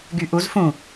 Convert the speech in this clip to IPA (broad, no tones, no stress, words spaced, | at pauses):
ɡyʔuz fũ